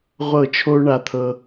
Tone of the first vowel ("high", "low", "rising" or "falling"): falling